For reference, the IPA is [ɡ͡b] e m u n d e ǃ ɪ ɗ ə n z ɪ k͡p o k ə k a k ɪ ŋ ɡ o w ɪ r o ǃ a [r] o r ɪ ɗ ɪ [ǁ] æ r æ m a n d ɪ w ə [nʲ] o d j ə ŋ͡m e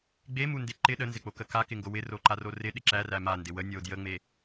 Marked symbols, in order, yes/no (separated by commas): yes, yes, yes, yes